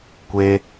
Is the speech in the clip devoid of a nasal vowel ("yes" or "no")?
yes